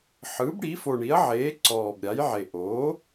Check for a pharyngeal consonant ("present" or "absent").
present